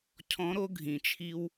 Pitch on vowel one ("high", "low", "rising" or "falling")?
rising